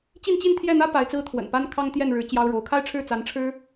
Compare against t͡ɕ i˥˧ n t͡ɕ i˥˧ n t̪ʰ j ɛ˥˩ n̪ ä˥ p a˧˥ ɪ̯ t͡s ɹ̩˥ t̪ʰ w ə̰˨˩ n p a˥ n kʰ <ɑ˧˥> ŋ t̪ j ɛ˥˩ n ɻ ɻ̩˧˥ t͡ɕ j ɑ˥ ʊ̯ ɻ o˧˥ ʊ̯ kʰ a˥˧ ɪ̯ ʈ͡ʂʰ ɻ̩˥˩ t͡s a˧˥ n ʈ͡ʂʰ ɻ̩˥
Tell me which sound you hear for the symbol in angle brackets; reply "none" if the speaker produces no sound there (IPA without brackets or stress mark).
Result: ɑ˥